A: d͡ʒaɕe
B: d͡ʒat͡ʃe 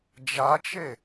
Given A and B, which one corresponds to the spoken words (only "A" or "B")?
B